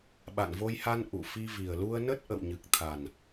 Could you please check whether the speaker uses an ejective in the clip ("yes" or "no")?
no